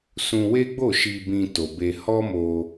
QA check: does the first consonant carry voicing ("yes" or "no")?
no